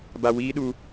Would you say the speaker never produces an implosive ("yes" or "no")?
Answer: no